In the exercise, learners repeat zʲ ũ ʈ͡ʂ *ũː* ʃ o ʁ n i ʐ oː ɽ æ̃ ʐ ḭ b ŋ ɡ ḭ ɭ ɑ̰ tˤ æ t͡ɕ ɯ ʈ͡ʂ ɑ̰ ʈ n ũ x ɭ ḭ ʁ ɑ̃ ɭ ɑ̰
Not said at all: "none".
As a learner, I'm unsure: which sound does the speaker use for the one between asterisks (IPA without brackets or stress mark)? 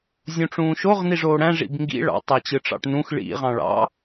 ũː